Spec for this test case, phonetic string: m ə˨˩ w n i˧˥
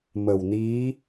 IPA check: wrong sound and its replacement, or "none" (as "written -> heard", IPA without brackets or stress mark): none